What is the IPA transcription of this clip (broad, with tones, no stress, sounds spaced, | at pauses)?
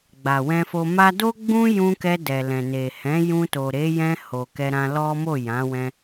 ɡ͡b a˨ w ɛ̃˧ f o˧ m a˦ d o˦ ɡ͡b ũ˦ j ũ˧ k ɛ˧ d ɛ˨ l ɛ̃˨ n e˨ h ɛ̃˨˦ j ũ˧ t o˨ ɾ e˨˦ j ɛ̃˧ h o˨ k ɛ˧ ɾ ã˧ l ɔ˦ m o˦˨ j ã˨˦ w ɛ̃˧